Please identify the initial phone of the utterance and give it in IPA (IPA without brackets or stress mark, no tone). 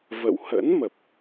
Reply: v